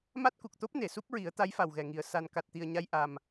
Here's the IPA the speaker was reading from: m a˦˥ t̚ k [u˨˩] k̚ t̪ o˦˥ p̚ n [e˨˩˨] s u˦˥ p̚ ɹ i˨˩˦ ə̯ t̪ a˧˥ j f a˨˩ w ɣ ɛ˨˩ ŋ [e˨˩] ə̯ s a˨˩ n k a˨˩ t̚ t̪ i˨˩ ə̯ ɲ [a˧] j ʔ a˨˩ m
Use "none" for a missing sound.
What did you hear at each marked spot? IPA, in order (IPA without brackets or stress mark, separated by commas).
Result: u˨˩, e˨˩˨, i˨˩, a˧